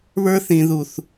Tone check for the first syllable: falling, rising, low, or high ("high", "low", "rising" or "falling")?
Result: high